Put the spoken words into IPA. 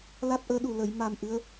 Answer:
l a˦˥ t̚ ʔ əː˧˥ ɗ u˨˩ l ə˨˩˨ j m a˨˩ m ʔ ɨ˧˥ ə̯

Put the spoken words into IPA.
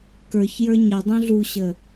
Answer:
k ə˞ ç j ə˞ ɲ ə dˤ ũ ɮ u ɕ ə

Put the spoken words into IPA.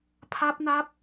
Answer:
pʰ a˦˥ p̚ n a˦˥ p̚

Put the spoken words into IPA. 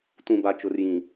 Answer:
t ũ˨ b a˨ t͡ʃ ʊ˨ r j ĩ˨

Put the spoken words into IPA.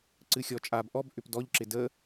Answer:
ǀ ɨ xʲ ɔ t͡ʃʼ a b ʔ ɔ b ʔ ʏ p d ɔ ʎ ǁ ɪ d ə

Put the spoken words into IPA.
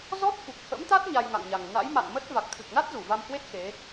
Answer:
z ɔ˦˥ t̚ f u˨˩ k̚ h ə̰˧˥ m t̪ a˦˥ t̚ ɲ a˧ j ŋ a̰˧˨ ŋ ɲ a˨˩ ŋ n a̰˧˥ j m a̰˧˨ n m ə˦˥ t̚ v a˨˩ k̚ t̪ʰ ɨ˨˩ k̚ n a˦˥ t̚ z u˧˩ v a˧ m h w e˦˥ t̚ x e˨˦

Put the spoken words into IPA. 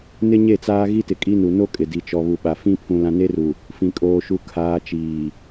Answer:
n ɪ˦ ɲ e˦˨ t͡s aː˦ ɣ i˦ t ɪ˨ kʼ i˦ n u˨ n o˦ kʼ ɪ˨ d i˨ t͡ʃ ɔ˨ β u˨ ɓ a˨ f ĩ˦ pʰ ũ˨ l ã˨ n e˦ r u˨ | f ĩ˨ kʼ oː˨ ʃ u˨ kʰ aː˨ t͡ʃ iː˨

